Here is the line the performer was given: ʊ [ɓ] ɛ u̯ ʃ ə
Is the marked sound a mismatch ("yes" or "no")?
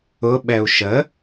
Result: no